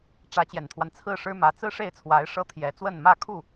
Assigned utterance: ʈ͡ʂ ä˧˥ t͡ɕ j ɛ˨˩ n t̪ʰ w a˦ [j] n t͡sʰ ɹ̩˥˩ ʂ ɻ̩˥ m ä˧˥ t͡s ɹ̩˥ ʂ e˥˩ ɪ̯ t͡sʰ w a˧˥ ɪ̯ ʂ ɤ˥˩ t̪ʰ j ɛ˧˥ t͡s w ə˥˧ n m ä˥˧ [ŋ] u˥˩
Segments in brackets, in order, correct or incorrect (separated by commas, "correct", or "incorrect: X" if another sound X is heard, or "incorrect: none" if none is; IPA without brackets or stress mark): incorrect: none, incorrect: kʰ